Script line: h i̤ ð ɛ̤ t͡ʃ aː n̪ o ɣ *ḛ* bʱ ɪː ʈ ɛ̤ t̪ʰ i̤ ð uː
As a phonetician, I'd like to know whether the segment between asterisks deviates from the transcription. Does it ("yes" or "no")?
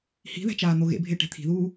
no